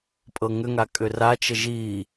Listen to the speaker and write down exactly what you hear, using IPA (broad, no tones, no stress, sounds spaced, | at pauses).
pʼ ɤ ŋ ʏ ŋ a kʼ ʏ r a t͡ʃ ə ʒ i